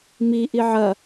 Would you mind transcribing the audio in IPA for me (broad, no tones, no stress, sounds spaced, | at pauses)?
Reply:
m i ʔ i ʕ ɐ